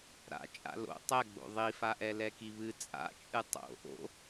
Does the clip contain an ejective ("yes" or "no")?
yes